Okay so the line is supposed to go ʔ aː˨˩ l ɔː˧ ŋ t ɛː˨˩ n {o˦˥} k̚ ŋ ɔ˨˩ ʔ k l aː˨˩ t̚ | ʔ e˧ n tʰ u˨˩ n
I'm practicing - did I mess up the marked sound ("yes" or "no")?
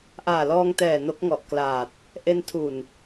no